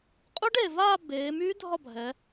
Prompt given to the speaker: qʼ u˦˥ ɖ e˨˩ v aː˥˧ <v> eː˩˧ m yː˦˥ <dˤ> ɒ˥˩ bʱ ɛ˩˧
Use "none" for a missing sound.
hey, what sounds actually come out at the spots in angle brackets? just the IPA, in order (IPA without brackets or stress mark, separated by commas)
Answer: b, dʱ